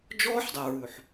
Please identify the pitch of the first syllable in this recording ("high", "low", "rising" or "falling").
high